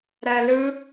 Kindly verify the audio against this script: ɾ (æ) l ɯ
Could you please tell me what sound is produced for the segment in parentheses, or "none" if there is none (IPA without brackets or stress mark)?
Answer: æ